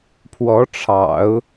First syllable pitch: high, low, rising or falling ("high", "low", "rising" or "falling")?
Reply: rising